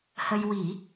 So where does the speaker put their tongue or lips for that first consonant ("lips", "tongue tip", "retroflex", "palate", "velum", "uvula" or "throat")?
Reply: throat